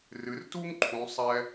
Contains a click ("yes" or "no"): yes